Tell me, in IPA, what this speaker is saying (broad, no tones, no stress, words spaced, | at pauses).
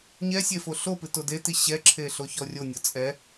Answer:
ɲɛsʲe foɬopɨ todeti ɕɛǁʰe ɬoçɔrʲonʲɔ t͡sʼɛ